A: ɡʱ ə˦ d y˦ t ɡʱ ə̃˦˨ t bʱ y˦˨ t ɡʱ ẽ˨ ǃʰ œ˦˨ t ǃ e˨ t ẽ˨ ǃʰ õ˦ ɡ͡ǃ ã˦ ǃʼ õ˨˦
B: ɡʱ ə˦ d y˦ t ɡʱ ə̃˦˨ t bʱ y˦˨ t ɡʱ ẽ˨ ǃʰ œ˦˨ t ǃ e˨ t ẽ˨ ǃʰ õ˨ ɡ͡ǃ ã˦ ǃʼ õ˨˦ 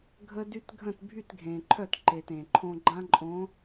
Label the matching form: A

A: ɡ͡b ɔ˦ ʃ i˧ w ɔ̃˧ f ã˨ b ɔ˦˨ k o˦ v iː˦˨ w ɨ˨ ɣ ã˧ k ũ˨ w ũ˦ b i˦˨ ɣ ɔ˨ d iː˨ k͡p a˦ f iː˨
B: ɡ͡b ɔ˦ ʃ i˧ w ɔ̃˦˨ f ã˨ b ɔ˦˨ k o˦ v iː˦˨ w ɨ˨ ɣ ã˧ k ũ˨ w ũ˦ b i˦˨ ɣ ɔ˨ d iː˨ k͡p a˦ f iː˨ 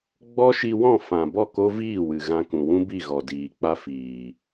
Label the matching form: B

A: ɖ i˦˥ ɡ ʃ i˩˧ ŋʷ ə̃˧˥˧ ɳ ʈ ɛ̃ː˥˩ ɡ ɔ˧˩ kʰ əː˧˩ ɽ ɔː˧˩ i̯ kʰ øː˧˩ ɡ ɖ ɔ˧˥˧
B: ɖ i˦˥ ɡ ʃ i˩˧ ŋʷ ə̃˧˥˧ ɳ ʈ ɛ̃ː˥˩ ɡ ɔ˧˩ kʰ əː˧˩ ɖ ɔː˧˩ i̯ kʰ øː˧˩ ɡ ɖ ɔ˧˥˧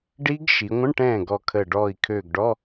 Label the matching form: B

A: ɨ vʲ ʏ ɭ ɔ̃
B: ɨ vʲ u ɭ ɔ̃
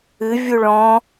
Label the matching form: B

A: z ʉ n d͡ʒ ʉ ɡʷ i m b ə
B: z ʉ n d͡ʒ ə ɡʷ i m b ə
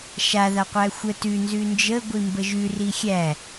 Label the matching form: B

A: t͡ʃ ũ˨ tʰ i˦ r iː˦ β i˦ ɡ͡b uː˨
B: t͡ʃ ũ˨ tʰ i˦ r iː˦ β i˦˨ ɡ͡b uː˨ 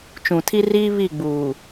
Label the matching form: B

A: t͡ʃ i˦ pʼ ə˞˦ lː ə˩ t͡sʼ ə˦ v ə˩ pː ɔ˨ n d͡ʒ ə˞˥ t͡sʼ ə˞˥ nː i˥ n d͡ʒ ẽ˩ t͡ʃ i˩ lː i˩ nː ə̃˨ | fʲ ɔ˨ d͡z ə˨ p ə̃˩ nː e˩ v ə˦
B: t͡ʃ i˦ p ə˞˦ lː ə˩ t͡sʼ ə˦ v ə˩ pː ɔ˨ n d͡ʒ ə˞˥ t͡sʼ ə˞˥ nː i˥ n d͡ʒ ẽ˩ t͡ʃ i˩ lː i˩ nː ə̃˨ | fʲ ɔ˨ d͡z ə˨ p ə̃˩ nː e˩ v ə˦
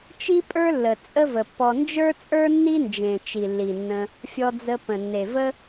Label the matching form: A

